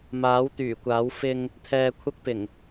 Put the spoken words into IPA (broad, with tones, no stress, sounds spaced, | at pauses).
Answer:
m aː˨˥ w t̪ yː˨˩ kʷ aː˨˥ w f ɪ˧ ŋ | t̪ʰ ɛː˧ kʷʰ ɐ˥ k̚ p ɪ˨˩ ŋ